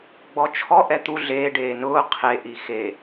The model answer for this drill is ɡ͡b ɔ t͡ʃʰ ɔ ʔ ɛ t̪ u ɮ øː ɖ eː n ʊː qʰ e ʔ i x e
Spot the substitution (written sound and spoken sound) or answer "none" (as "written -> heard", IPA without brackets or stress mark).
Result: øː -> eː